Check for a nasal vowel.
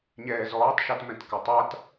present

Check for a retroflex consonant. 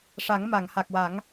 present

